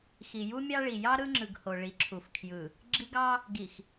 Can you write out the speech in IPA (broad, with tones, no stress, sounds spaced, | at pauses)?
x i˨ j u˦ mʲ ɑ˦ ɭ i˨ j ɑ˦ ɾ ɯ˦ ŋ͡ǁ ɯ˨ ɡ h o˨ ɭ i˨˦ ǁʰ u˨ f kʰ j ɯ˨ | ɡ͡ǁ i˦ ɡ ɑ˦ | ɡ i˨ x